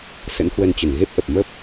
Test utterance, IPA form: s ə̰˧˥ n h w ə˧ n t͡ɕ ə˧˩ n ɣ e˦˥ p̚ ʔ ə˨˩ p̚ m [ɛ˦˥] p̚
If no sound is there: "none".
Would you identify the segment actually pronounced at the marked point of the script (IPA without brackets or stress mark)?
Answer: ə˦˥